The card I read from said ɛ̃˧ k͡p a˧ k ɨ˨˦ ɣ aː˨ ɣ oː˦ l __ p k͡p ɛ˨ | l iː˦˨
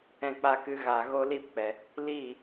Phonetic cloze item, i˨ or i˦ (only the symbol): i˦